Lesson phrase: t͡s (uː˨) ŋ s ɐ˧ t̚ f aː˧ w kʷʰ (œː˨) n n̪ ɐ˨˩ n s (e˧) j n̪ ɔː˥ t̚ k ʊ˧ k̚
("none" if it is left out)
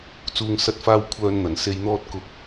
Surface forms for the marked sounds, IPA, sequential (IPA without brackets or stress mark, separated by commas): uː˨, œː˧, e˧